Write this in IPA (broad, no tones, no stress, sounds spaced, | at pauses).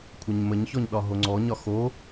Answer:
kʷʰ ə ɲ m ə ɲ ç ɔ ɲ ɗ ɒ ɦ o ŋ͡ǀ ɔ ɲ ɒ x o